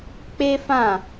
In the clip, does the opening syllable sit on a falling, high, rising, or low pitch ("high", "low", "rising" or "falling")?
high